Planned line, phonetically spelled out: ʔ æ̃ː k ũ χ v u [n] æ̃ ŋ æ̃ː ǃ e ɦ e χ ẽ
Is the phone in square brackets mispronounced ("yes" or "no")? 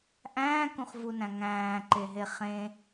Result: no